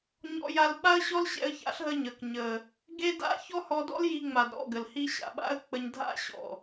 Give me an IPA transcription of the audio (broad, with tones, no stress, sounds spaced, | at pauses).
ɲ ɔ̰˧ j a˧ l ɓ a˦ ə̯ ɕ ɔ˦ l ɕ ɛ̰˧ ə̯ ç a̰˨˦ ɬ ɦ ə˧ ɲ ə˨ k ɲ ə˨ | ɡ e˦ d a̰˦ ç ɔ˦ h ɔ˧ d ɔ̰˦ l j i˧ ŋ͡m a˨ d ɾ ɔ̰˦˨ ɡ ə˨ l h i˧ ɕ a̰˨ ɓ a̰˦ ə̯ k͡p ə˧ ɲ dʱ a̰˦ ɕ ɔ̰˨